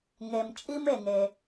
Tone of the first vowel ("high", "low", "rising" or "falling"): low